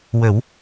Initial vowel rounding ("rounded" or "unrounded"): unrounded